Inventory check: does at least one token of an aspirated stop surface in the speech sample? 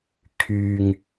yes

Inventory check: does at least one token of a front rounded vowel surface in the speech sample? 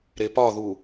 no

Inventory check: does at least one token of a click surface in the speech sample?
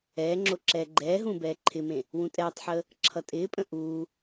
yes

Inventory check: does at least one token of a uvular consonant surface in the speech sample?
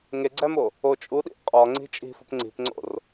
yes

